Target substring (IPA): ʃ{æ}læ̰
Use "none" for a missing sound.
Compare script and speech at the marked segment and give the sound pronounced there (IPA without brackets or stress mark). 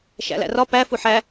æ̰